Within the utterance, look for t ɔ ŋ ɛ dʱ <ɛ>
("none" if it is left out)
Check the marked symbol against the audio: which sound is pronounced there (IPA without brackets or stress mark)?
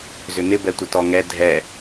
ɛ